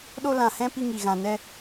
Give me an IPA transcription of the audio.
ɗo˧ lã˨hɛ̃˧ pi˧ŋi˨ ɣã˨ nɛ˧

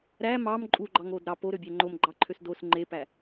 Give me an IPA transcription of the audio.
ɾæ mɑm ǃʼuɡ͡ǃɑŋod ɾɑ poɾøbʲæ ŋ͡ǃomɡ͡ǃɑǃʰøs dos ŋ͡ǃepæ

